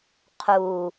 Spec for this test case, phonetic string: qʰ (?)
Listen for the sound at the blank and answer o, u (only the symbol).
u